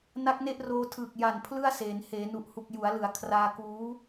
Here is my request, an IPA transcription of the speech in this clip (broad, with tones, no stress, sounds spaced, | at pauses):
n a˦˥ k̚ n e˥˩ ʔ r oː˧ tʰ ɯː˨˩ k̚ j a˨˩ n pʰ l ɯ˥˩ a̯ s eː˩˦ n h eː˩˦ n u˨˩ ʔ h u˨˩ k̚ j u˩˦ a̯ l ɯ˩˦ a̯ kʰ r aː˧ k uː˦˥